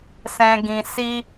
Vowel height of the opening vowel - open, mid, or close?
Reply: mid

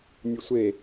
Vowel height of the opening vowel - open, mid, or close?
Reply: close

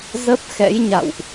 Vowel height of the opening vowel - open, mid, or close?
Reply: mid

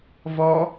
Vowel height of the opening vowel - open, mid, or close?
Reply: mid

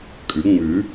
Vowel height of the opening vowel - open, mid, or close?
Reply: close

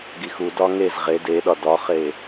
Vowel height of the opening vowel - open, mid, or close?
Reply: close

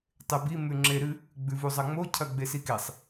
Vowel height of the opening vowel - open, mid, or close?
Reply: mid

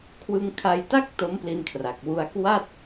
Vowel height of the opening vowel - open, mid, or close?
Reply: close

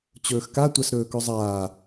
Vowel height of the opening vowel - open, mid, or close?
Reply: mid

